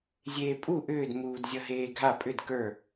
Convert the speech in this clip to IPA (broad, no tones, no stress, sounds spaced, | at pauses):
zʲ eː pʼ u ʔ ʏː d m uː d zʲ ʌ ɦ eː ɡʱ a pʼ ʏ d k ə˞